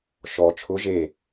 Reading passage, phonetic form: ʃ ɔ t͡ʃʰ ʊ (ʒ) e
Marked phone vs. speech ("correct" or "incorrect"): correct